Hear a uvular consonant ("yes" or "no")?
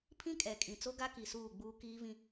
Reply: no